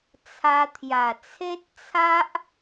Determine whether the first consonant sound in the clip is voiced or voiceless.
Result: voiceless